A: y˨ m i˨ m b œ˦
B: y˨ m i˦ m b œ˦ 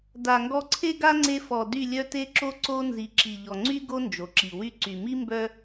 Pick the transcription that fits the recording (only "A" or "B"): B